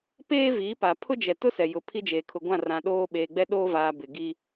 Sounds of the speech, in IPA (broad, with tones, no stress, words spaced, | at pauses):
peː˦viː˨˦pa˨ pʰʊ˦d͡ʒɛ˨tʊ˦sɛ˨ jʊ˨pʰi˦ d͡ʒeː˨kʰʊ˨ɡʷã˦˨rã˨ ɗoː˦ ɓeː˨ɡ͡bɛ˦ɗoː˦vaː˨ bɪ˨ɡi˦